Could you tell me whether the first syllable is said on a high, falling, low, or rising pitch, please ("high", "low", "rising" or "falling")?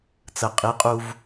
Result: low